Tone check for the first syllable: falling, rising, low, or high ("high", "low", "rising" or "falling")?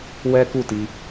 high